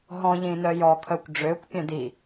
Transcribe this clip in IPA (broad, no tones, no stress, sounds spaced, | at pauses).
ɦ ɔ̃ ʎ ĩ n œ j ɔ kʰ œ kʷ ɖ͡ʐ ø kʷ pʲ œ̃ d i